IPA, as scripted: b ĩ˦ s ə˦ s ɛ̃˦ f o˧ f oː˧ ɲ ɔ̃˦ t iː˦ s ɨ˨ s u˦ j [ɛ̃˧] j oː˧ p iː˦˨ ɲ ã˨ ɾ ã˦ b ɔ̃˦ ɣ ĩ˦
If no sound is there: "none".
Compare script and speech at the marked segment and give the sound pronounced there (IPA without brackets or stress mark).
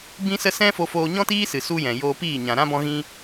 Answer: ɛ̃˨